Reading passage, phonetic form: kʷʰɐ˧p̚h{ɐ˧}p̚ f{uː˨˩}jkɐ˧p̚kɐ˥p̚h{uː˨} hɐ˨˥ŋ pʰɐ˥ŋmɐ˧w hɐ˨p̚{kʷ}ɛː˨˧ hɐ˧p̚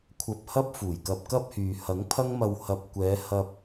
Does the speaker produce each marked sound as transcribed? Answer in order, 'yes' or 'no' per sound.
no, yes, no, yes

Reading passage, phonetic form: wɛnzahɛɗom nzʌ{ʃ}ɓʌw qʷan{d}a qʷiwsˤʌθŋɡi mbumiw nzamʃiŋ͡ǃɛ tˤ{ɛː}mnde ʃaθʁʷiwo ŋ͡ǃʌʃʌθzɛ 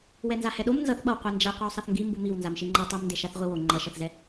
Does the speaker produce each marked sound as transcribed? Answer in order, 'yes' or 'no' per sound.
no, no, no

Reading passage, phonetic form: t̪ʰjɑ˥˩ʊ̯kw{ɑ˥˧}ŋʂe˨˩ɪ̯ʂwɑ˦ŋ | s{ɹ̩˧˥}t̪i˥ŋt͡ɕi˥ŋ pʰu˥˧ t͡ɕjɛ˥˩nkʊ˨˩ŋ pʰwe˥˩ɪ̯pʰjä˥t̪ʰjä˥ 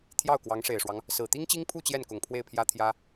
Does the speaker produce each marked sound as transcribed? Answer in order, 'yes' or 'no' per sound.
no, no

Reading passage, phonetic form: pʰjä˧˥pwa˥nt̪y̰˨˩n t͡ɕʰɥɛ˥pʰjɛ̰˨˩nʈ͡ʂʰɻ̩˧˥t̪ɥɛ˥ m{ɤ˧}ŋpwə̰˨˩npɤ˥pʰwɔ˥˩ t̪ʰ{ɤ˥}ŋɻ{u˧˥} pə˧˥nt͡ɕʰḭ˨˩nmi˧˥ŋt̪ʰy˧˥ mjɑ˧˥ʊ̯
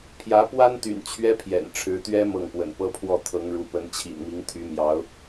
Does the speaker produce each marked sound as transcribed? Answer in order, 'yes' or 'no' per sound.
no, no, yes

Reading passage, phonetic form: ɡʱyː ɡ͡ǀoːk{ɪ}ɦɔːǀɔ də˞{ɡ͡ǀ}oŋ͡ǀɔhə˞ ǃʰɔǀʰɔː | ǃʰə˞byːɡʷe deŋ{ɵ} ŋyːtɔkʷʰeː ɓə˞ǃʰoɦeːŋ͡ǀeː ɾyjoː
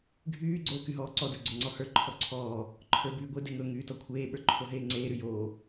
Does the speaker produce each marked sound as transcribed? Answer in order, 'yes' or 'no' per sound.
no, yes, yes

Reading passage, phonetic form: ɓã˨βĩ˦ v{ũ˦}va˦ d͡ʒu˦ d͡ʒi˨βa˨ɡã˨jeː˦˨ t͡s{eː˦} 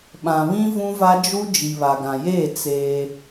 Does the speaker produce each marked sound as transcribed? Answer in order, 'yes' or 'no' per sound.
yes, yes

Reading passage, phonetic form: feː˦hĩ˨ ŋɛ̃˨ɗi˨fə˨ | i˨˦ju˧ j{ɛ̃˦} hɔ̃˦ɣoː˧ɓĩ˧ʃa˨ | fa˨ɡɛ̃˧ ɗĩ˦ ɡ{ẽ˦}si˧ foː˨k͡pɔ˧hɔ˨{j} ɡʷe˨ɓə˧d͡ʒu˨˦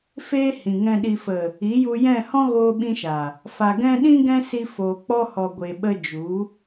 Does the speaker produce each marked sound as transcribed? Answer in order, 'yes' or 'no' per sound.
no, no, no

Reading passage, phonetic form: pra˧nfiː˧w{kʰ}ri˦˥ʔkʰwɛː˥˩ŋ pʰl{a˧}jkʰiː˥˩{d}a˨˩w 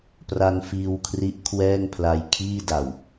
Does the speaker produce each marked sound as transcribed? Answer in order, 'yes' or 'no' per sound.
yes, yes, yes

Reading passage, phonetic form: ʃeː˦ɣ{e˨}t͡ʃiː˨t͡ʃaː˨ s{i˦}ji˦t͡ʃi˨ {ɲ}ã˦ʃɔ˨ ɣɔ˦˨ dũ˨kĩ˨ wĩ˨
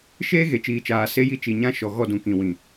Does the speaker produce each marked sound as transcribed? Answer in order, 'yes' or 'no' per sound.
yes, no, yes

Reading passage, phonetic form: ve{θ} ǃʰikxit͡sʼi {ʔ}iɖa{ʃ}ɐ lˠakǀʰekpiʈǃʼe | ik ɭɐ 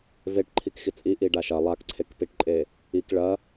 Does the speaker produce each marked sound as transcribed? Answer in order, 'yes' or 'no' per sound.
no, yes, yes

